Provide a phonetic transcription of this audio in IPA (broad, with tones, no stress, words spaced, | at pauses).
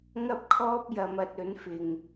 ŋɐ˥p̚kʰɔː˥p̚jɐ˨˧m ɐ˧t̚ ɵ˨˥nfɪ˨ŋ